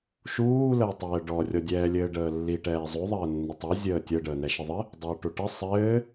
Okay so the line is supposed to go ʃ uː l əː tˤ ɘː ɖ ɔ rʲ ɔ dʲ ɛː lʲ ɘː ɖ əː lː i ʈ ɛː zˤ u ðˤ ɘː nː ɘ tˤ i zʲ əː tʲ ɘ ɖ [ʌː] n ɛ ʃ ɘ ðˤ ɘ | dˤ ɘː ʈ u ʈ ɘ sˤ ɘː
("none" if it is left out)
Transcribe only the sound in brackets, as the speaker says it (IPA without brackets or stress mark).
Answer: əː